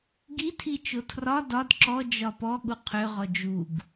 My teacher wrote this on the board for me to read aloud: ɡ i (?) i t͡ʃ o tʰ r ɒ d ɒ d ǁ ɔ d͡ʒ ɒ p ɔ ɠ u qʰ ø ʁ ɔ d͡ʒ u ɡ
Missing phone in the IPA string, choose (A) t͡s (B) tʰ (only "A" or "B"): B